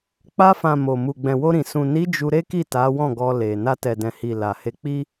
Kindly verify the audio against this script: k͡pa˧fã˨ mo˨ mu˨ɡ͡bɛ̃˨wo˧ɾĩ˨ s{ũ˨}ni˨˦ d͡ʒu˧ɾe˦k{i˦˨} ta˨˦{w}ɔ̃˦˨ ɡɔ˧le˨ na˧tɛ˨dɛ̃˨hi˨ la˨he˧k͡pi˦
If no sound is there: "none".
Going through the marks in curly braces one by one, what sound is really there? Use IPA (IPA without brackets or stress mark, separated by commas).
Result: ũ˨, i˦˨, w